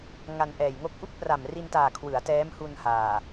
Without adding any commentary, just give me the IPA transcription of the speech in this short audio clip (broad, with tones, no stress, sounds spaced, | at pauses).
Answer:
ŋ a˧ n ʔ ɛː˨˩ j ŋ o˥˩ k̚ ʔ u˥˩ k̚ p r a˨˩ m r i˧ n t aː˨˩ kʰ w ɯ˩˦ a̯ t ɛː˦˥ m h u˧ n h aː˨˩